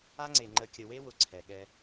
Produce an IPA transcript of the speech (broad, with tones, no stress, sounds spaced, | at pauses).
a˦ ŋ͡ǀ e˨ ŋ͡ǃ ə˨ kʲ ə˨ w e˦ w ʊ˨ ǀʰ ɛ˨ ɠ ɛ˦